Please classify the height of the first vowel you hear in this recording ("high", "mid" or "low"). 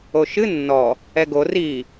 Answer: mid